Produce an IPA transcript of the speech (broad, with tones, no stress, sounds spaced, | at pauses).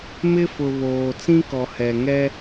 m ɪ˦ f ʊ˨ β oː˨ t͡s ĩ˦ k ɔ˨ h ɛ˨ ŋ ɛ˦